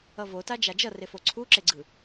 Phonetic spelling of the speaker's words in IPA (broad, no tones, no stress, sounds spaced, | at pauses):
ʌ v o t a d͡ʒ a d͡ʒ ʌ r e f o ǀʰ u ǁ e ɡ͡ǀ ɯ